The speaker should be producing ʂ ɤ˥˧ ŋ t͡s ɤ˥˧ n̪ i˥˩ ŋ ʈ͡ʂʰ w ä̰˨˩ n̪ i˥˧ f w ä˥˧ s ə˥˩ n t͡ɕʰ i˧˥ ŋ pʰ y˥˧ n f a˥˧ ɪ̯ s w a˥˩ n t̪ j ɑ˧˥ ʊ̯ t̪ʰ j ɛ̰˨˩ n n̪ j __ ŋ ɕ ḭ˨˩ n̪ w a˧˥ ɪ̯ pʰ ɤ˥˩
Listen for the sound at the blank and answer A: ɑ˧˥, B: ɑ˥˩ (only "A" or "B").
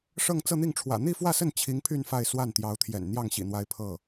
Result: B